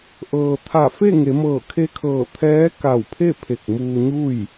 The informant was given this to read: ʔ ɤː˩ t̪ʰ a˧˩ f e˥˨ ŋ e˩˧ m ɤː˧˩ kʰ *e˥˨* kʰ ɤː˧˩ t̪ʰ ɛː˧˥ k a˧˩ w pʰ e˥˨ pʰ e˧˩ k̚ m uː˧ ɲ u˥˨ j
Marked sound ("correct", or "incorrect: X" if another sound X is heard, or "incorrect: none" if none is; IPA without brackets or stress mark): incorrect: e˧